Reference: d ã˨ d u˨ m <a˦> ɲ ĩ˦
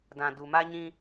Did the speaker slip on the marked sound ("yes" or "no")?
no